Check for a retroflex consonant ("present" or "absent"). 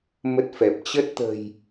absent